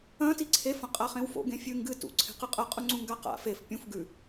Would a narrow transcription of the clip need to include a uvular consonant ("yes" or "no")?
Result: yes